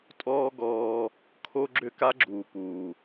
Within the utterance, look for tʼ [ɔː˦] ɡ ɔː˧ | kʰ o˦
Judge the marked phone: correct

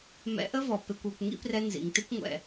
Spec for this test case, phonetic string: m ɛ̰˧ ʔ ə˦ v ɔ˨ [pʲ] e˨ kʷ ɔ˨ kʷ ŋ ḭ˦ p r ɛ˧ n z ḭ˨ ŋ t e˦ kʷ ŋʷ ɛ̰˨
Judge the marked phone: incorrect: p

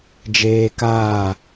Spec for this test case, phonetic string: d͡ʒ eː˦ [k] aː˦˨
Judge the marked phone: correct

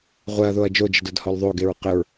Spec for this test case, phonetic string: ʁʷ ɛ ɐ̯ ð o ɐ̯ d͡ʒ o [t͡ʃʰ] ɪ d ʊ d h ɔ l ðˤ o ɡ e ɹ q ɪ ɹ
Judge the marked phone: incorrect: d͡ʒ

